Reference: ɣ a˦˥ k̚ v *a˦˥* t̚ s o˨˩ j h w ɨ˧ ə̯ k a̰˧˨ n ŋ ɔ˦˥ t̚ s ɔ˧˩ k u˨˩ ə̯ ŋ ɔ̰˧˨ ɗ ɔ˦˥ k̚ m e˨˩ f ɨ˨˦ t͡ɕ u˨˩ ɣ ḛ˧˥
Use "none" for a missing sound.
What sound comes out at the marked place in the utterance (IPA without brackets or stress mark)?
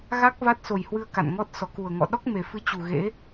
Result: a˦˥